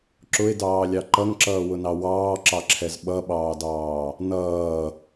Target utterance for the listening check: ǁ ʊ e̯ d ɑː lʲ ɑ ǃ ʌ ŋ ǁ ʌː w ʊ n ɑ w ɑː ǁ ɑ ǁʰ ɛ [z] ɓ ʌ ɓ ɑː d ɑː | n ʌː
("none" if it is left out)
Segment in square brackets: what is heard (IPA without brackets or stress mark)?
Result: z